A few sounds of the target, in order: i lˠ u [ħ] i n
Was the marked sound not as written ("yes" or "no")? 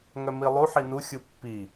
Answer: no